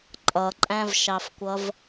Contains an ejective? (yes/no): yes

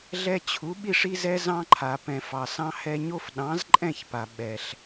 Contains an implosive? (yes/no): yes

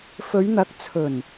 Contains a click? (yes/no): no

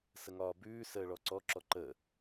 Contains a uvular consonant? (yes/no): no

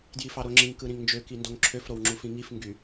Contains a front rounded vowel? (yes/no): yes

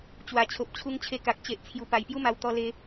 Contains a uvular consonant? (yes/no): no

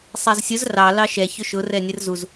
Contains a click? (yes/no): no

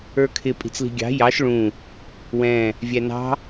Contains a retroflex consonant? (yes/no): yes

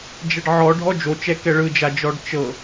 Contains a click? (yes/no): no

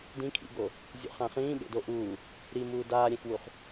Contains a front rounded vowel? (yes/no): no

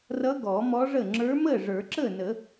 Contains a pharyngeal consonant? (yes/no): no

